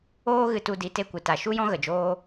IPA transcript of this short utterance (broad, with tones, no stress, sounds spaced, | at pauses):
oː˦ ɣ ɨ˧ t u˧ d i˨˦ t e˧ kʷ ɨ˨ t a˨ ʃ u˦ j ɔ̃˦ ɣ ə˨ d͡ʒ oː˦